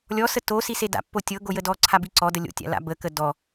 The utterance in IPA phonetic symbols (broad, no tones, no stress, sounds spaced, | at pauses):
lʲ ɔ s ə t o s i s e d a̰ pː o tʲ ɤ ɡ o j ə d ɔ ǀʰ a b i ǀ ɔ d ə lʲ o̰ tʲ a̰ l a̰ b ə k ə d ɔ